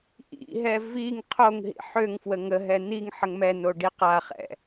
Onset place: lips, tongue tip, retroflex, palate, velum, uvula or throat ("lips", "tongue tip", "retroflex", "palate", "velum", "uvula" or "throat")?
throat